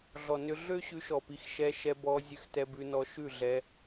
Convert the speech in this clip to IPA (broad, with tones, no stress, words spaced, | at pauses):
ɮɔ˨nʏ˧ ɮø˦ɕʉ˧ʃɔ˨pi˨˦x ʃɛ˧ʃɛ˧bɔ˧ zʲø˧xtɛ˧bʉ˧nɔ˧ ʃʉ˦˨ɮɛ˧